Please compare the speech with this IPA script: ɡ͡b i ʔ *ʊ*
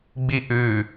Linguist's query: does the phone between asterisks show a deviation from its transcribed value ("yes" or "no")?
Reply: yes